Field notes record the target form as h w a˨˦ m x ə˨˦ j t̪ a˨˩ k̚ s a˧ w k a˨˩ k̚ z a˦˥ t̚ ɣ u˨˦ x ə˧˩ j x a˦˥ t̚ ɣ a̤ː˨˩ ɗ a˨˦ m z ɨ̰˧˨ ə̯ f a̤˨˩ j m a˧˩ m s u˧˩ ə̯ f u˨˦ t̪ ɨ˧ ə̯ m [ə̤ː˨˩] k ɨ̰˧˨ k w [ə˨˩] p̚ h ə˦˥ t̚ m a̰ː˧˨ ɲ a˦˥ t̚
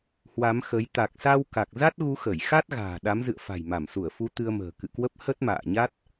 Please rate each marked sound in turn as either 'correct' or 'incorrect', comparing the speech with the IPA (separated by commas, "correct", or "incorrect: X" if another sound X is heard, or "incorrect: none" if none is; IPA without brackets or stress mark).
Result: correct, incorrect: ə˦˥